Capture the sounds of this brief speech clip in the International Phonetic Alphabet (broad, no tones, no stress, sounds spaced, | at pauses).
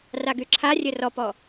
r a ɡ y ǁʰ a rʲ ɘ r ɔ p ɔ